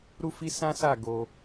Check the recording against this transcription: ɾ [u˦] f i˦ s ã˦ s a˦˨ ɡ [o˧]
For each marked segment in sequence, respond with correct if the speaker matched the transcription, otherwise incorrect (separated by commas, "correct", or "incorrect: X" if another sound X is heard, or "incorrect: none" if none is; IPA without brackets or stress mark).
correct, correct